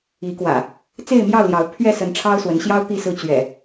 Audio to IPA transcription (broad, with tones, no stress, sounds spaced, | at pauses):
i˨˦ k w ä̰˨˩ | t͡s e˥˨ ɪ̯ m j ɑ˥˨ ʊ̯ l j ɑ˨˦ ʊ̯ pʰ ɥ ɛ˥˨ s ə˨˦ n ʈ͡ʂʰ ɑ˦ ʊ̯ s w ə˨˦ n ɕ j ɑ˦ ʊ̯ t̪ i˥˨ s ɹ̩˦ t͡ɕ ɥ ɛ̰˨˩